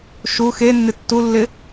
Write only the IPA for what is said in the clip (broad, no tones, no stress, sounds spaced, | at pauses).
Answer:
ʃ u x e nː ɪ tː u lː ɪ